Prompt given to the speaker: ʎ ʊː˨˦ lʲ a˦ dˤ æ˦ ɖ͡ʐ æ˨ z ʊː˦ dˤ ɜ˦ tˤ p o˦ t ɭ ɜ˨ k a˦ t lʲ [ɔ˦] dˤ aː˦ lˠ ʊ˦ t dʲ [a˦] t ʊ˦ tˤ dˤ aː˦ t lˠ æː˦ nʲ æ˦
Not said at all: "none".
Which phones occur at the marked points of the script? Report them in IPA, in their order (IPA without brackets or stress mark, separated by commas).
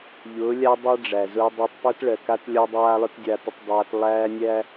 ɔ˦, a˦